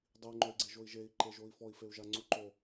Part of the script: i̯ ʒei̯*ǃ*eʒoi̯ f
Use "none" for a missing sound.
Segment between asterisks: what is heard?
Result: ǃ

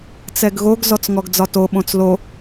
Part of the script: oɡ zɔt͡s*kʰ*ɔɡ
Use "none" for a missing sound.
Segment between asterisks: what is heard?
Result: ŋ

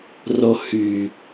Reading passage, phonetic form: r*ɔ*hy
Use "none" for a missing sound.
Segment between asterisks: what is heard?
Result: o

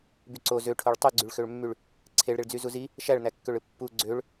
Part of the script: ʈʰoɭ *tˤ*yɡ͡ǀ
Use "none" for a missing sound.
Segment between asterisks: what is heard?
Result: tˤ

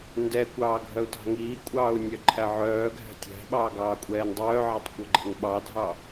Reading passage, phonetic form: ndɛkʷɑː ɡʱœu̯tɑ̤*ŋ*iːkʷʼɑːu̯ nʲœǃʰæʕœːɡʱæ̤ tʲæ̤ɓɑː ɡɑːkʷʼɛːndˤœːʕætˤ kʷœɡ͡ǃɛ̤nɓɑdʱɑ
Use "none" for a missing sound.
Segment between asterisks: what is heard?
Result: ŋ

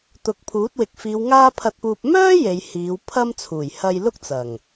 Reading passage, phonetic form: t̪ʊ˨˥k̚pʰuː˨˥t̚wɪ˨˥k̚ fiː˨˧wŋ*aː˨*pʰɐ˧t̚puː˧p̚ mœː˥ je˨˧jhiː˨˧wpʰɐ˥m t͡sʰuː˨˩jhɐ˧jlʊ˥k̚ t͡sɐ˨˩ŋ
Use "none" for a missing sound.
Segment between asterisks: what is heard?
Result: aː˥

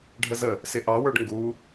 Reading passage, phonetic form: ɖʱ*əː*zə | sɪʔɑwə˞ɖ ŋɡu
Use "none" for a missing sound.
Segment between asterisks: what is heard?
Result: ə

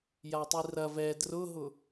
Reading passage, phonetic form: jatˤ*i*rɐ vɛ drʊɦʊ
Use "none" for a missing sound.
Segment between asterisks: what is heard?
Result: i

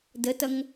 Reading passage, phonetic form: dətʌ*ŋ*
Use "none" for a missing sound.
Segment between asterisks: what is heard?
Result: ŋ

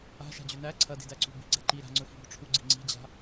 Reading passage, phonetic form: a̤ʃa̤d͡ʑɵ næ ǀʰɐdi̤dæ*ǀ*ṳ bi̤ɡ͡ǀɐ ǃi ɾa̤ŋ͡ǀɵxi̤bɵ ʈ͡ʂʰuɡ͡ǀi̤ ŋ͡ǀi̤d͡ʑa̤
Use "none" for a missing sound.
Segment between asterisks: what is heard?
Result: ǀ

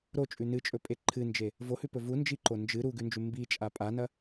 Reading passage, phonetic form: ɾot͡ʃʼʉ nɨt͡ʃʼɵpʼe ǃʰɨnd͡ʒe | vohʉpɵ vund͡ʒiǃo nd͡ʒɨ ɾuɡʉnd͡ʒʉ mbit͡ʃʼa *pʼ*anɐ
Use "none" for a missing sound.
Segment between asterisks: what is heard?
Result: pʼ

